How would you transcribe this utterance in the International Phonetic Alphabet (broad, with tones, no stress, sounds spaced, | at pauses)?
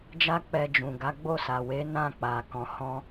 d͡ʒ a˦ k͡p ɛ˧ d͡ʒ ũ˨ ɡ a˨˦ ɡ͡b o˦˨ s a˨ w e˨˦ n ã˦˨ k͡p a˨ k ɔ̃˨ h ɔ̃˧